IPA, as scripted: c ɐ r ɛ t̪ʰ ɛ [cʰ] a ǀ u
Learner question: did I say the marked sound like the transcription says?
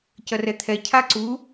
yes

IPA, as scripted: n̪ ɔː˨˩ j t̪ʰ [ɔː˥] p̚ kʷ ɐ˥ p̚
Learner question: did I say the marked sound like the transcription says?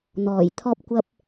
yes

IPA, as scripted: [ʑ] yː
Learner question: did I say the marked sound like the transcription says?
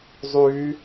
no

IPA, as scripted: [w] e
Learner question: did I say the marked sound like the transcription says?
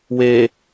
yes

